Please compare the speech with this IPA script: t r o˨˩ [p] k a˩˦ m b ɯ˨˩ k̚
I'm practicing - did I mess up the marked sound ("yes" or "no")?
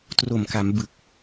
yes